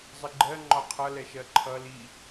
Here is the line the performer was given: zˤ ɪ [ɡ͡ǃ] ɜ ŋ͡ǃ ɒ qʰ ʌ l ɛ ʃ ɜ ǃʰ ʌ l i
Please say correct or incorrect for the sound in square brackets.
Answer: correct